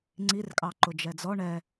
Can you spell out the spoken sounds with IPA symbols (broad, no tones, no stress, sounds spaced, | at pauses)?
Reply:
ŋ͡ǀ i r kʼ ɑ ǃ ʊ d͡ʒ ɛ d͡z ɔ ɳ ɛ